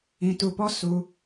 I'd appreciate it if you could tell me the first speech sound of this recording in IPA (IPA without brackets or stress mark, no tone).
ĩ